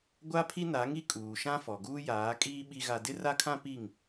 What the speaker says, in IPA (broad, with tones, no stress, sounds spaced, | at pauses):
ɡʷ a˦ pʰ i˦ n a˨˦ ŋ i˦ kʼ uː˨ ʃ ã˦ f ɔ˨ ɡ uː˦ j aː˨˦ kʼ iː˦ ɓ i˦ ɣ a˦ d ɪ˦ r a˦ kʰ ã˦ p i˦˨ ŋ